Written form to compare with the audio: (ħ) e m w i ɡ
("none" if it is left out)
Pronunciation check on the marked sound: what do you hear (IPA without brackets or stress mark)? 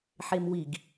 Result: ħ